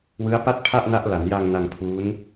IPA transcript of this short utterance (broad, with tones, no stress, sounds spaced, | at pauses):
w ɯ˦˥ a̯ p a˥˩ t̚ pʰ a˥˩ ʔ n a˦˥ ʔ l a˩˦ n j a˧ ŋ n a˧ ŋ pʰ uː˦˥ n